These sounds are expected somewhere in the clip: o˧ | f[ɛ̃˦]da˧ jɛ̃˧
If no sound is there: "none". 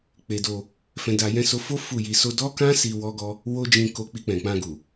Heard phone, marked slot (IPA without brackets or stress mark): ɛ̃˧